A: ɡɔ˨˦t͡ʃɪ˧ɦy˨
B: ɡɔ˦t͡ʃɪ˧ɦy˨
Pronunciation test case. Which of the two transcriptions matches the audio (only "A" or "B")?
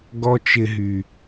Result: B